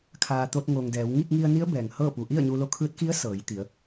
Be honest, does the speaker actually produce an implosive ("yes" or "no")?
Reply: no